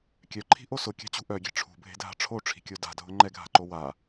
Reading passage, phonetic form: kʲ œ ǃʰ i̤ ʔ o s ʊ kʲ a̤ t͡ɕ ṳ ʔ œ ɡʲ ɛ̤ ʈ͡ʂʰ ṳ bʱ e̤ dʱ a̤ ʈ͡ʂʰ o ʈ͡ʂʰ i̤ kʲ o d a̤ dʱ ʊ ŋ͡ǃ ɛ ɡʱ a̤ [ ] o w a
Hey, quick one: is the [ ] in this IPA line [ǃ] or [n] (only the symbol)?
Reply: ǃ